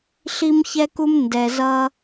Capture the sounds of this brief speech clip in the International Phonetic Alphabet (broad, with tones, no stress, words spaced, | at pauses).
ɬi˦mçɛ˦ku˦m ndɛ˨zʌ˦